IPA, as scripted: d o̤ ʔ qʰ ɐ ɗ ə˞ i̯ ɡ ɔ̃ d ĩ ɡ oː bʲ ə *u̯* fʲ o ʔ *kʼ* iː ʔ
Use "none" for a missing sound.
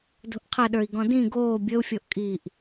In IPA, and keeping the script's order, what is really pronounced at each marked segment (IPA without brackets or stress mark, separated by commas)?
u̯, kʼ